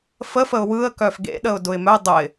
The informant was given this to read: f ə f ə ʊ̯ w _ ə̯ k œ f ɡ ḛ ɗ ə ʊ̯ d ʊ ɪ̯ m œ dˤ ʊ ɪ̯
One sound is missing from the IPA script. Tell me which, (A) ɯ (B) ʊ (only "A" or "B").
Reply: A